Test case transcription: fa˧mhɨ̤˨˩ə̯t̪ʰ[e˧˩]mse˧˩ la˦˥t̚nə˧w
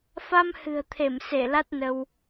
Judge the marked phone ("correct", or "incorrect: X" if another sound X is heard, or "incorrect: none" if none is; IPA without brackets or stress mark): correct